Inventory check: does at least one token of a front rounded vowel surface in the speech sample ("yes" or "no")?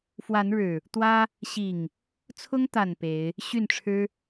yes